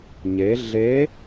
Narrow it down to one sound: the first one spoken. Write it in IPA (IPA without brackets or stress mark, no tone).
ɲ